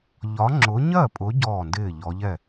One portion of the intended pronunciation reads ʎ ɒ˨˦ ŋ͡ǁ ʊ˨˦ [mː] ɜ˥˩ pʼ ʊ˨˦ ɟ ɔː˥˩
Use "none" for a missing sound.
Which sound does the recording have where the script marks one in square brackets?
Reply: ɲ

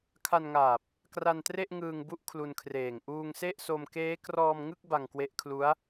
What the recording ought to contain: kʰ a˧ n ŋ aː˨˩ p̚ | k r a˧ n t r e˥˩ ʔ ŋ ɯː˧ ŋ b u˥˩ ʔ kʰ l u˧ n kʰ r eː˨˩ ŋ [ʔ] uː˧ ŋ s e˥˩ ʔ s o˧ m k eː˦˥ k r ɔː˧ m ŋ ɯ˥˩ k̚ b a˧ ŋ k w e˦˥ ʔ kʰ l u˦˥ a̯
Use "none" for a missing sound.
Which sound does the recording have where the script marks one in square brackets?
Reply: ʔ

